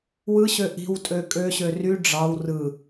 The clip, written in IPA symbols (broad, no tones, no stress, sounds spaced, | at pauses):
w ɯ ɕ ø ʔ i̤ w tʼ ø kʼ ø ɕ ø r y ɖ͡ʐ ɑ w r ɯ